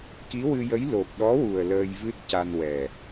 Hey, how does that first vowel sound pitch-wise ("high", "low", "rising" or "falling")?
rising